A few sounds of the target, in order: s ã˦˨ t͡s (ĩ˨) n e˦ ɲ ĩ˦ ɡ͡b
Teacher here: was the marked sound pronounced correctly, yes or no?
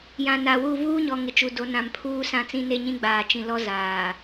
no